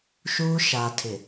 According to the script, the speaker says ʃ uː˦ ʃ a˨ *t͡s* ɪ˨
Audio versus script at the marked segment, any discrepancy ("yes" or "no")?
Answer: yes